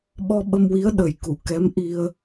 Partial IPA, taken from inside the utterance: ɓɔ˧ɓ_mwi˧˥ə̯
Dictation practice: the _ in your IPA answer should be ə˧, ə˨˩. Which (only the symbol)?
ə˧